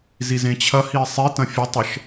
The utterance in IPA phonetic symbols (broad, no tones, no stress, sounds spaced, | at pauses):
z i z ẽ t͡ɕʰ ɐ h i sˤ i t ɐ̃ fʲ ə tˤ ə ʃ